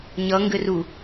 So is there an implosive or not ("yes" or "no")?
no